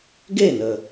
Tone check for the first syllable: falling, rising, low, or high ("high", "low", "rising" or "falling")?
falling